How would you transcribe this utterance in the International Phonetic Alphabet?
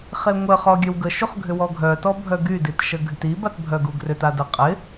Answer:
χ e ŋʷ ə χ ɔ ɡʲ œ w ɡ ə ʃ u χ ɡʱ ʏ w ɔ ɡʱ œ t ɔ bʱ œ ɡ y d i t ʃ ə ɡʱ y t i b a t bʱ œ ɡ u ɡ r ʏ t a d ə qʼ ɪ

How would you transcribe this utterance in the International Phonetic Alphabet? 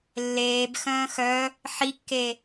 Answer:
lː eː b x œ̃ː x œ | ħ i kː e

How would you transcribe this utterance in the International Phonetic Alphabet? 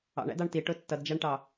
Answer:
ɑ̰ ɳ æ̰ d ɑ ɳ t i ʈ ʊ tː ʌ d d͡ʒ æ ɳ ʈ ɑ

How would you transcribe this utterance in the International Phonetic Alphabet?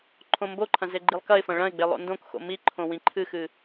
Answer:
ǃʰ õ m b o ǃʰ ɐ̃ z e ɡ͡ǃ i lˠ k ɐ ɪ̯ f ɐ̃ ɭ ɐ̃ ɪ̯ ɡ͡b e lˠ o̰ n d õ k x o̰ m i ǃʰ õ w ĩ ǃʰ ɨ x ɨ

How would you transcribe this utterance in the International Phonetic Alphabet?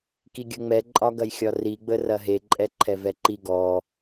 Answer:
k i ɡʲ ə ŋ͡m ɛ ǃʼ ɒ ɡ ɐ j xʲ ɒ r i ɡ͡b ə r ɐ ɦ e ǃʼ ɛ ǃʰ ɛ v ɛ ǃ i ɡ ɔ

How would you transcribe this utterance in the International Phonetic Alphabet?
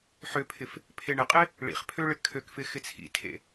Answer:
ħ ø pʰ ɪ f | pʰ e ɳ ɪ qʼ ɪ | ɭ ḭ χ pʰ ø ɭ ɪ kʰ ø k f ɪ x ɪ t͡sʰ ḭ tʰ ḛ

